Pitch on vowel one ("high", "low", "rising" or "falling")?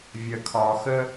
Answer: low